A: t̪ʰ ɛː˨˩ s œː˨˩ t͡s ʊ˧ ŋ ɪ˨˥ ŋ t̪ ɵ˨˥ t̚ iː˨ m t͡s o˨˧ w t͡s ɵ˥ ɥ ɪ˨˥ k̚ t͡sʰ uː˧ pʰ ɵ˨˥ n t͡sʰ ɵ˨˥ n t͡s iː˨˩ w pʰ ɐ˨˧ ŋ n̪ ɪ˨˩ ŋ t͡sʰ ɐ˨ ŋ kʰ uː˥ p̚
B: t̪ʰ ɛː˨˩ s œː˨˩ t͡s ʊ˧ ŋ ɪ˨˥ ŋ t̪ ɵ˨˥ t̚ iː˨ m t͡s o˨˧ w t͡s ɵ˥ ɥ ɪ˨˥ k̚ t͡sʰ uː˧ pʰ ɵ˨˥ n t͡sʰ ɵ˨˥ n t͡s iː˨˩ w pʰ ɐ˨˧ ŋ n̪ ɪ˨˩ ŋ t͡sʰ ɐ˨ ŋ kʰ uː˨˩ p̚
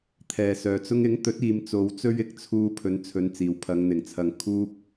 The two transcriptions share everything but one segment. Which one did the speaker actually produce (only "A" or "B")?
A